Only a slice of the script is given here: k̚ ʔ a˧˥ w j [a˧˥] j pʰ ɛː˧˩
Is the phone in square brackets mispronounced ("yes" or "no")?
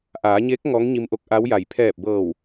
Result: yes